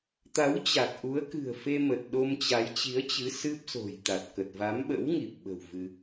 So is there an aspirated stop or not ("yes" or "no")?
no